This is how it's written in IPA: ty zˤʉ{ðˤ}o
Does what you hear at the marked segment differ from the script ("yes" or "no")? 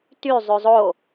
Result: yes